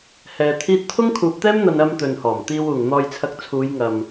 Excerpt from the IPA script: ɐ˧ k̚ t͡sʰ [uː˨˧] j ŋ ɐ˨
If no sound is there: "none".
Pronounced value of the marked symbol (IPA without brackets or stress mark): uː˨˧